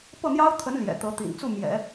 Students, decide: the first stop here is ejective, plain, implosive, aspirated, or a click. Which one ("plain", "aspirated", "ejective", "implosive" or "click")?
plain